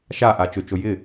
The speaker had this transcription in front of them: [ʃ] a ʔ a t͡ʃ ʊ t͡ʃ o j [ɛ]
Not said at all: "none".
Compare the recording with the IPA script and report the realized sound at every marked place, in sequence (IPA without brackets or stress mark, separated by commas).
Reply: ʃ, ɪ